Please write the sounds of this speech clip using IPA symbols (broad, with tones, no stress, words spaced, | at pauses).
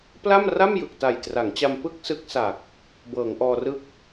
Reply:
pla˥˩m ra˥˩mjɯ˨˩k̚ta˨˩j tra˩˦ŋt͡ɕa˧m pɯ˥˩k̚sɯ˦˥k̚sa˨˩k̚ | bɤː˩˦ŋʔɔː˧rɯ˥˩k̚